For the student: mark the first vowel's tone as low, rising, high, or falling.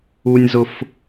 high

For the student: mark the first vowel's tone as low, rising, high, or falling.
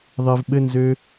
low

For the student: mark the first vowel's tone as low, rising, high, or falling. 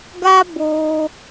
high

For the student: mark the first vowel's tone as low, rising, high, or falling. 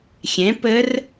rising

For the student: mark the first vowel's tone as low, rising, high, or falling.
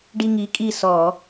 high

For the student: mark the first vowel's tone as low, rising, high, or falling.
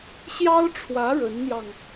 high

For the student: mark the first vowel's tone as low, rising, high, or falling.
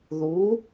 rising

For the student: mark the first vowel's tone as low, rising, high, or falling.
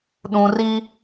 high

